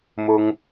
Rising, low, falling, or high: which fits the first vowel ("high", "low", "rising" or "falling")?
high